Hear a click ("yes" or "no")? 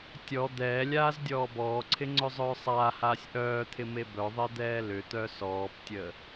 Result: yes